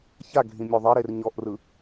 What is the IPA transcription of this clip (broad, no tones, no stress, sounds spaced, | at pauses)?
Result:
ç a ɡʱ ĩ mʲ o ðˤ e ɾ e r ɲ ɔ ʔ r ɯ